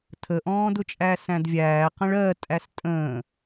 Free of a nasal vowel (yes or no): no